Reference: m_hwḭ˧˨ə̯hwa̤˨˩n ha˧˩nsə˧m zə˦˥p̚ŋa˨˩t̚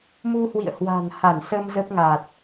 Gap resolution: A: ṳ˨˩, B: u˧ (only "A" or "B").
B